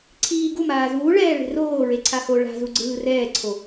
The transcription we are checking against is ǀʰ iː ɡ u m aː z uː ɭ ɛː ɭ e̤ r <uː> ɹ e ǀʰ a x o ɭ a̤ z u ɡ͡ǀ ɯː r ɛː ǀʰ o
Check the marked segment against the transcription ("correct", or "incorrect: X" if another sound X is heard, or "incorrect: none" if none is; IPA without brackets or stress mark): incorrect: oː